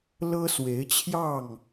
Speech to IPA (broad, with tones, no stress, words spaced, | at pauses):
lɤ˦swe˨˦ɪ̯t͡ɕʰjɑ˥˨ŋ